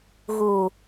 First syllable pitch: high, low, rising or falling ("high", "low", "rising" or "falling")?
low